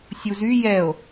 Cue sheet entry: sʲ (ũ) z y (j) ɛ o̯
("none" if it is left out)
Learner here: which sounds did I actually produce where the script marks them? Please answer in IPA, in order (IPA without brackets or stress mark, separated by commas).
u, j